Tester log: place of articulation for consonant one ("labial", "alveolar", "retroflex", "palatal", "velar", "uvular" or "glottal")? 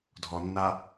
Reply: alveolar